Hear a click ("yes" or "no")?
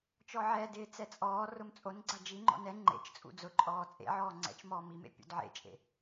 yes